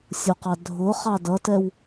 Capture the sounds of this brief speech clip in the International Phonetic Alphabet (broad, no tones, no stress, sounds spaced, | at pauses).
sʲ ʊ q ɑ dʱ ʊ χ ɑ d ʌ t ɛ w